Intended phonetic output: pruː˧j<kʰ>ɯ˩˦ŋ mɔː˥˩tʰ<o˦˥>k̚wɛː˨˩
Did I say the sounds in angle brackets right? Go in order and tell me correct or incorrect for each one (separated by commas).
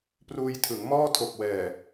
incorrect, incorrect